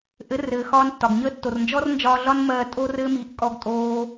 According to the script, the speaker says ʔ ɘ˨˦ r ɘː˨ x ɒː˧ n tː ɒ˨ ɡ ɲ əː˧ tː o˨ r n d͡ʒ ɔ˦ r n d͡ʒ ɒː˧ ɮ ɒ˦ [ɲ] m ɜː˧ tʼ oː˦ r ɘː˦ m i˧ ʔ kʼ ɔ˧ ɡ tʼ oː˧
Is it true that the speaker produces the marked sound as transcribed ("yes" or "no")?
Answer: no